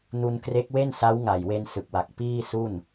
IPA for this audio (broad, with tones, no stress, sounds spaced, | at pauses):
n u˧ n k r e˦˥ k̚ w e˥˩ n s a˦˥ w ŋ a˨˩ j w e˧ n s ɯ˨˩ k̚ w a˨˩ k̚ p iː˥˩ s u˥˩ n